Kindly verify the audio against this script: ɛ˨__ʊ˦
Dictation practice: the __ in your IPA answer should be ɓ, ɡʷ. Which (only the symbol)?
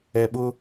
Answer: ɓ